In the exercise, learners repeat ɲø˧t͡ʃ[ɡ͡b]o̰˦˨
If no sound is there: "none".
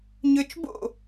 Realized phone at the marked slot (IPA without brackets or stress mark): b